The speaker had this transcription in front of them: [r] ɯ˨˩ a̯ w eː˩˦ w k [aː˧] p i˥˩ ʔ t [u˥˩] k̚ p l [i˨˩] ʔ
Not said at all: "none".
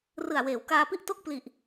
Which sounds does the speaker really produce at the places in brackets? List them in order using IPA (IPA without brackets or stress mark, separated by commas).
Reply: r, aː˧, o˥˩, i˨˩